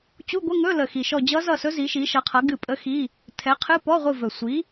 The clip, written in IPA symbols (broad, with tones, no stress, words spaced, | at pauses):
t͡ɕu˧˥˧ɡʷə˧˥˧ŋɵ˧˥˧lə˨˩ xi˨˩ʃɔ˦˨ d͡ʑʌ˦˥zʌ˦˨sɵ˦˥ zi˨˥ʃi˨˥ʃʌ˨˥qʰʌ˨˥ ɡɨ˦˨pʼə˦˥xi˧˥˧ | tʰɛ˨˥qʰɨ˧˥˧ pɔ˧˥˧ʁʷɨ˦˨vɵ˨˩ sʷi˨˥